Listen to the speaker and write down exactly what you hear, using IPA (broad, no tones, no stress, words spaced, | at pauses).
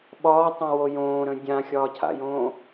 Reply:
ɓɒːtˤõwo jõːɾə̃ dʲãxʲɒːcʰa̰jõː